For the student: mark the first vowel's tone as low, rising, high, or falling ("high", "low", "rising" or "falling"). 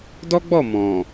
high